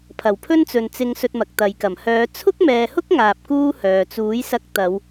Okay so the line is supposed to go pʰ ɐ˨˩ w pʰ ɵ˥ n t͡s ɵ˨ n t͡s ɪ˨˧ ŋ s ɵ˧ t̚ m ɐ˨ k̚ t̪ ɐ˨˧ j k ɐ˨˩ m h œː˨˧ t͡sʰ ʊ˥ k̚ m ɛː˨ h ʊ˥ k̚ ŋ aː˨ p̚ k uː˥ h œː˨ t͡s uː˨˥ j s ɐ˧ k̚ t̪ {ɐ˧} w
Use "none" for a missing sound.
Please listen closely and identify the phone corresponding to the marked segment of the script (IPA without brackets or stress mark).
ɐ˨˧